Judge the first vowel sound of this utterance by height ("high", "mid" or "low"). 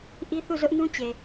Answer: high